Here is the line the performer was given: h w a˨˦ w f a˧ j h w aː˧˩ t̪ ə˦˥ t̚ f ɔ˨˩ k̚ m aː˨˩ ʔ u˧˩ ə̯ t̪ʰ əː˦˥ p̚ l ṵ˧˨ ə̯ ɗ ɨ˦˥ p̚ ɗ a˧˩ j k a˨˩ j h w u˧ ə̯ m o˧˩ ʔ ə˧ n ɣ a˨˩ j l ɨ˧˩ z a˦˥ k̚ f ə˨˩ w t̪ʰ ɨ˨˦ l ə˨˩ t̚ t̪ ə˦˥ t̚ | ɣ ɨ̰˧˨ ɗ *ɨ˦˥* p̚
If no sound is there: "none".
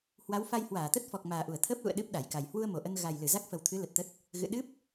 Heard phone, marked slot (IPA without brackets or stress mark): ɨ˦˥